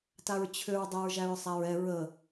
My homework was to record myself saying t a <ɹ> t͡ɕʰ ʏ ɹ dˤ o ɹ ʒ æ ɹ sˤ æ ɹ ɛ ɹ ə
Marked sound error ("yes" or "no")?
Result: no